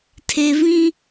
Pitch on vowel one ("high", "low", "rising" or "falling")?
low